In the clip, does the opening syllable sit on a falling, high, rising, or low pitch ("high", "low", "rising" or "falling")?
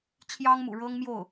high